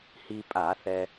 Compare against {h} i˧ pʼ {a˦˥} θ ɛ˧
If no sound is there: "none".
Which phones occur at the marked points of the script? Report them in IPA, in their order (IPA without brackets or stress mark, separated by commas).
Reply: h, a˧˩˧